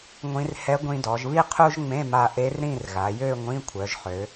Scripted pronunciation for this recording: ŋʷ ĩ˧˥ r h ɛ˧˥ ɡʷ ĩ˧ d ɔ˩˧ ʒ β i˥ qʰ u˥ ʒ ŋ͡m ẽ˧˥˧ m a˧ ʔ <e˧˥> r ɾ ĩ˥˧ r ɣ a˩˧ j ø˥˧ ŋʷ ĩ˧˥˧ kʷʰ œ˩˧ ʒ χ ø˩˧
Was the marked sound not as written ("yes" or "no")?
no